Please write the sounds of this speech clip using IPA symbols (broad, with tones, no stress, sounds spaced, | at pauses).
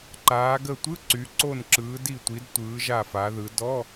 ǃ aː˩˧ ɡ ə˧˩ tʷ ɯ˧˥˧ ǀ y˩˧ ǀ o˧˩ n ǁ ɯː˩˧ d i˧˩ tʷ i˩˧ d tʷ ɯː˩˧ ʒ a˧˩ f a˩˧ ð ɯ˩˧ d ɔ˧˥˧